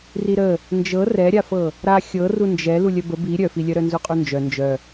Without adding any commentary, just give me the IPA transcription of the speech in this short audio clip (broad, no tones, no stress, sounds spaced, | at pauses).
r i ɾ ə | n d͡ʒ ɤ r ɛ ɾʲ a f ɤ | ɾ a xʲ ɤ r u n d͡ʒ ɛ l u lʲ œ b ə b i ɾʲ œ f i lʲ œ ɾ œ n z u qʼ u n d͡ʒ œ n d͡ʒ œ